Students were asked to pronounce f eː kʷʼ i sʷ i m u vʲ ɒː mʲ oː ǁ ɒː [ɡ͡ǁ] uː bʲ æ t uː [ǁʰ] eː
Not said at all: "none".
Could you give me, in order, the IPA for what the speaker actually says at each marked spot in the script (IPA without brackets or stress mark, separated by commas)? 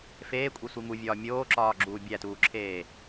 ɡ͡ǁ, ǁʰ